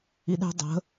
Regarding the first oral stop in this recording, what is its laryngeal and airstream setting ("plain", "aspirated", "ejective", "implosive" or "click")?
implosive